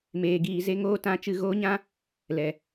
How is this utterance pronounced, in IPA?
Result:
m eː˧ ɡ iː˧ z e˦ ŋ oː˦ t ã˧ t͡ʃ ɨ˦˨ ɣ oː˦ ɲ ã˦ | l ɛ˨

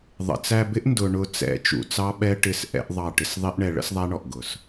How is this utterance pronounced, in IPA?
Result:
ðˤ ə̰˨ t͡s æ˧ b ɪ˦ ʔ n d ʊ˧ ɳ ʊ˧ t͡s ɛ̰˨˦ t͡ʃ ṵ˨ t͡s ɑ˦ ɓ ɛ˦ ʈ ɪ˦˨ s ʔ ɛ̰˦ ʔ ðˤ ɑ˦˨ ʈ ɪ˦ s ðˤ i˦ ʔ ɳ ɛ˧ ɭ ə̰˦ s ðˤ æ˦ ɳ ɔ˨ ʔ ɡ ʊ˨ s

